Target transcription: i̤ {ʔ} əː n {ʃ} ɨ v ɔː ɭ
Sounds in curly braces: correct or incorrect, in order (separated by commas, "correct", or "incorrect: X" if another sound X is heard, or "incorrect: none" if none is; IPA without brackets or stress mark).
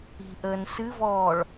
correct, incorrect: s